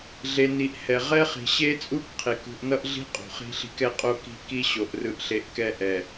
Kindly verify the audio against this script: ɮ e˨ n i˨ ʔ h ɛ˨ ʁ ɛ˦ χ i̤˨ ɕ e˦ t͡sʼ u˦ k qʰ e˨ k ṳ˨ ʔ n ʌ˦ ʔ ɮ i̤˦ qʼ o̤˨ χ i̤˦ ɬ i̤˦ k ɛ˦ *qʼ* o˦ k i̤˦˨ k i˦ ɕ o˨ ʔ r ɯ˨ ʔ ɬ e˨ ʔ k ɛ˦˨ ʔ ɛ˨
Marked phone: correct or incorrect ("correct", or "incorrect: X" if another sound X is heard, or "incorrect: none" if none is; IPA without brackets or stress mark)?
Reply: correct